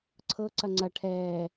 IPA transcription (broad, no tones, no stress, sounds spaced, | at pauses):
ǀʰ ɤ ǀ ɐ ŋ͡ǀ ɐ ʈʰ ɛː